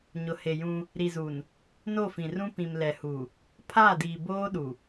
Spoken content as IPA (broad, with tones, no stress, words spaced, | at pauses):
ɲʊ˨he˨jũ˦ | ɾi˨zu˨n | no˦˨fĩ˨rũ˦ pĩ˨mlɛ˨hu˨ | pʰaː˦˨diː˨ boː˦ɗu˨